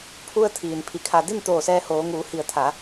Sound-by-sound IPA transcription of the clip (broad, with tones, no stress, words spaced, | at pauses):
pʰu˧ə̯ t̪ʰiː˩npʰi˧˩kʰa˧ di˥˨n t̪oː˧˩sɛː˧hoː˩˧ŋuː˩˧ hi˧˩ə̯t̪ʰa˩˧